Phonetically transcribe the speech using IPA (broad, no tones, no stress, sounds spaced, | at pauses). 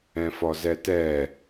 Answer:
ɛ̃ f ɔ z ɛ t ɛ